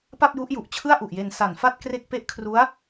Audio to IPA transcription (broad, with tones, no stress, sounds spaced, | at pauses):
p a˥˩ p̚ j u˦˥ ʔ j u˨˩ ʔ t͡ɕʰ ɯ˥˩ a̯ ʔ u˨˩ ʔ j e˧ n s a˨˩ n f a˥˩ t̚ k r e˥˩ k̚ p e˥˩ ʔ kʰ r u˦˥ a̯